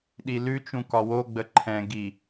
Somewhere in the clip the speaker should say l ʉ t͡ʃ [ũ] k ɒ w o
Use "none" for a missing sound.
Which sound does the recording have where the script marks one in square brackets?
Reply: ũ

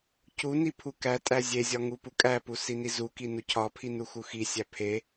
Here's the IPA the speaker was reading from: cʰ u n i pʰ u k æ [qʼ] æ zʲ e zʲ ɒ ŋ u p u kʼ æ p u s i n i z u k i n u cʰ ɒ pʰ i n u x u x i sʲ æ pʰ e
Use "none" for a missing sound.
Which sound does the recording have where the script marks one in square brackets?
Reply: tʼ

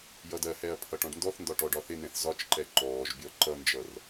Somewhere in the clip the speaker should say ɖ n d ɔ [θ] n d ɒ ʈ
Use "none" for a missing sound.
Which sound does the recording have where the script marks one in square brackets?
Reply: θ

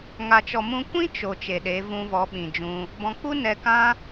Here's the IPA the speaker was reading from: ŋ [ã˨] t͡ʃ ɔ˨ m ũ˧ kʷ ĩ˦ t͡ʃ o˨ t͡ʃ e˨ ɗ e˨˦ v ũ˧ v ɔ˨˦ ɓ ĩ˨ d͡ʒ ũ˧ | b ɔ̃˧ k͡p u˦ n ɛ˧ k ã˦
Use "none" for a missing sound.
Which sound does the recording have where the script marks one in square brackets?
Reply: a˨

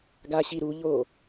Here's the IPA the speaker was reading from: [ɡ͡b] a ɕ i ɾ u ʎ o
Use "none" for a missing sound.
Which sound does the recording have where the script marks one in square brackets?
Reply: ɡ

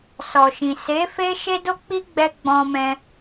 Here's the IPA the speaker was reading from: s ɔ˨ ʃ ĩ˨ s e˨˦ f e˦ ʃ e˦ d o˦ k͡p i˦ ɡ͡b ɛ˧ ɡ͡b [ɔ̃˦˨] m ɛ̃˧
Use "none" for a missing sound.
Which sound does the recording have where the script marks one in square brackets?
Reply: ɔ̃˧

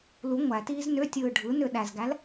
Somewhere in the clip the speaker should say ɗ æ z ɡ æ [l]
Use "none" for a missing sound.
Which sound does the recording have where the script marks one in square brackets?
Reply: l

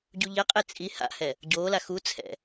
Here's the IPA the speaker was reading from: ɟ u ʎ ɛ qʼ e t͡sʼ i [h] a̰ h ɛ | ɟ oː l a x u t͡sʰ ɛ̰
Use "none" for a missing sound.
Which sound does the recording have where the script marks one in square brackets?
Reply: h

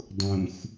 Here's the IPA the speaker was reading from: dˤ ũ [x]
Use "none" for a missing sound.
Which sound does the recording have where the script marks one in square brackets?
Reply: x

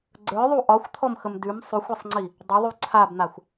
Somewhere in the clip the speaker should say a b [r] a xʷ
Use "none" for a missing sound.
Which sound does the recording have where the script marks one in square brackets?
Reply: n̪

